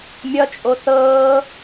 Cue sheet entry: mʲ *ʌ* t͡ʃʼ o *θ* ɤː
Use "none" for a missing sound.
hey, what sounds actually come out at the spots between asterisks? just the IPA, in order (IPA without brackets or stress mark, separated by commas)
ʌ, θ